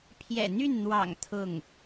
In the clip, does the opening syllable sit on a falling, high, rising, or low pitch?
low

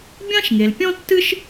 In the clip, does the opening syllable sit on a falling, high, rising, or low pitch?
high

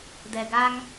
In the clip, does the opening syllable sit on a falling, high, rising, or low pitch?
low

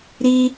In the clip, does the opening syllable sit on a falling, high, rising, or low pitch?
high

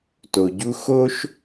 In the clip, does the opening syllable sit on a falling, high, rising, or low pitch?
low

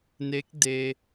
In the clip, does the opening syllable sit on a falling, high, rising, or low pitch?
rising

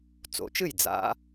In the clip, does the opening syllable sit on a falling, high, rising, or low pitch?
rising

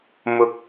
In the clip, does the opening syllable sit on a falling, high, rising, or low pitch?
rising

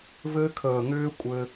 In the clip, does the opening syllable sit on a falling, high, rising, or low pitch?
high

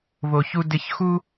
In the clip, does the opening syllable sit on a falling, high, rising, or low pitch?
high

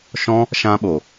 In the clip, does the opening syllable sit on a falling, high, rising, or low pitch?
high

